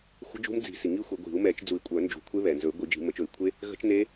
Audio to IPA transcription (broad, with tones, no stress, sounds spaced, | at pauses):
xʷ ə̤˦˥ d͡ʒ ṳ˦˥ m d͡z i̤˨˩˦ s i˩ ŋ i˦˥ xʷ e˨˩˦ ɡʷ i̤˨˩˦ u̯ m ɛ˨˩˦ t͡ʃ d͡z u˨˩˦ i̯ kʷʼ œ˨˩˦ n d͡ʒ ṳ˨˩˦ kʷʰ e˦˥ β ɛ˩ n z ɵ˨˩˦ y̯ ɡʷ i˨˩˦ d͡ʒ i̤˨˩˦ m ə˨˩˦ t͡ʃ ɵ˨˩˦ i̯ kʷʰ e˦˥ | ɣ ə̤˦˥ t͡ʃ n e˦˥